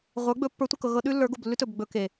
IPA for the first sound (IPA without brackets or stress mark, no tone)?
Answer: ʁʷ